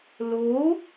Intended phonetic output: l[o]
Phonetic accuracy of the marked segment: correct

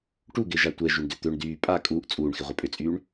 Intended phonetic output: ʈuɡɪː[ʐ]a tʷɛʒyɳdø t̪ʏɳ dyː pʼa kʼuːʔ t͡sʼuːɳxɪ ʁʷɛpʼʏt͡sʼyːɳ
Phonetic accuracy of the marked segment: incorrect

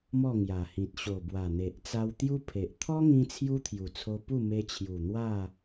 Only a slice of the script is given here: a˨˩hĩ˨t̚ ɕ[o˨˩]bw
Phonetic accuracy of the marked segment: correct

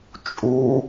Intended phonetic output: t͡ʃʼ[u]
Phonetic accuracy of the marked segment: correct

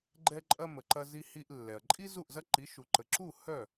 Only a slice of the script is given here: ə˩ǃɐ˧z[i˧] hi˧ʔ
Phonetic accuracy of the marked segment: correct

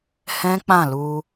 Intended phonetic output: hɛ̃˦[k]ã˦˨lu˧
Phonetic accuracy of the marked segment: incorrect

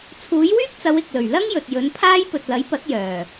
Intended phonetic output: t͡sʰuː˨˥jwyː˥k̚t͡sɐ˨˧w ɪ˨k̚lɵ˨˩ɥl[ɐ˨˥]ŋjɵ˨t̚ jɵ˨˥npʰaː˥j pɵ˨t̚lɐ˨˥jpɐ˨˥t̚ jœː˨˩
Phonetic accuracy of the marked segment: incorrect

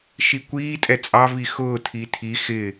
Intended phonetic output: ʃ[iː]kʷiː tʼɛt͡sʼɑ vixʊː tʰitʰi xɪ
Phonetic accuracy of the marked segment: incorrect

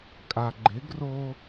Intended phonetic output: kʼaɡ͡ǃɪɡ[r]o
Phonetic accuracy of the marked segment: correct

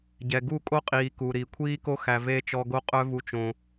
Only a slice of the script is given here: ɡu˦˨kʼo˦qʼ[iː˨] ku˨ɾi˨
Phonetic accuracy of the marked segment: correct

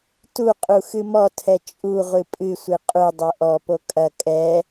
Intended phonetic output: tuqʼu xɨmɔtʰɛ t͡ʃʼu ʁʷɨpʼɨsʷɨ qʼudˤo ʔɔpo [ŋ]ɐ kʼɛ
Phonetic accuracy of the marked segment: incorrect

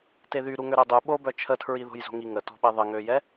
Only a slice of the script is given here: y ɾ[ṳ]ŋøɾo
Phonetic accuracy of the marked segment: incorrect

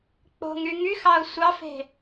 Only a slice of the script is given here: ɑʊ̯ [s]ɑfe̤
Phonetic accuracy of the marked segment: incorrect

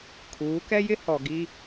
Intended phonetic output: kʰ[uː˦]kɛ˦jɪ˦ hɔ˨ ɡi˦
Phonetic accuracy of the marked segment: incorrect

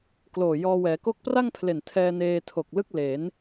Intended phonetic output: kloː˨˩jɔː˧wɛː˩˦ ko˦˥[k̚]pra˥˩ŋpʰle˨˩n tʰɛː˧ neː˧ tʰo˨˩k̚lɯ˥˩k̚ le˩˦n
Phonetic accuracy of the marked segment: correct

